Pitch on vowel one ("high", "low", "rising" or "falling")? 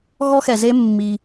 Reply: high